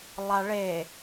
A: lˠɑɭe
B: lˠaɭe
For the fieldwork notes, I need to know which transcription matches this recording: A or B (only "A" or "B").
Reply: B